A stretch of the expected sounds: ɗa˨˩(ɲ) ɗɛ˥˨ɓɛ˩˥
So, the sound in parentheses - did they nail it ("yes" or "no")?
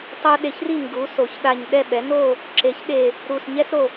yes